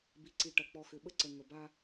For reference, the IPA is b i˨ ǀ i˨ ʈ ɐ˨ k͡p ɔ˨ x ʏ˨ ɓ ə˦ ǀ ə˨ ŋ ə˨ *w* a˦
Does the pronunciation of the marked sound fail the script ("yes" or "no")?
yes